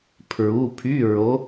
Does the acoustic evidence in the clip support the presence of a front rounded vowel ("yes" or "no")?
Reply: yes